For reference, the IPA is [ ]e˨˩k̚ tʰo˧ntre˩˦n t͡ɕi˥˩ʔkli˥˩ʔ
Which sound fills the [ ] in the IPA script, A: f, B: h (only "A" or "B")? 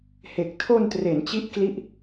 B